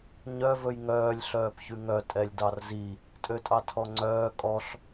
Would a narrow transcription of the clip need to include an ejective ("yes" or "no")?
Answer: yes